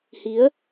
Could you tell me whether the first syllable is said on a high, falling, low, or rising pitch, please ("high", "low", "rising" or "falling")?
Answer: rising